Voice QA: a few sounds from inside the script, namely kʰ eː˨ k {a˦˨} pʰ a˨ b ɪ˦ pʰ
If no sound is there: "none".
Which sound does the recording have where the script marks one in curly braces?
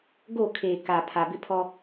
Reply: a˨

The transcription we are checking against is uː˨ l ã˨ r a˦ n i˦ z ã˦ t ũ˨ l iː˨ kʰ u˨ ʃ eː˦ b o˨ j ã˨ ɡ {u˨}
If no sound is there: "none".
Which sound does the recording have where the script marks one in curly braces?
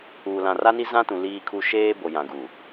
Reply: u˨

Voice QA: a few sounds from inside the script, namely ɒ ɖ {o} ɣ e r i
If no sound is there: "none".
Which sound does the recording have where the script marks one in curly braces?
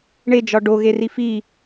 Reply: o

